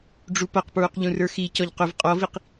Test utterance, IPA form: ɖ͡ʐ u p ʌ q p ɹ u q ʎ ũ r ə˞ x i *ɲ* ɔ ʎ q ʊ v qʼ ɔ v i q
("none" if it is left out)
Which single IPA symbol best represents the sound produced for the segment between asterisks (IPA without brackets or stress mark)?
c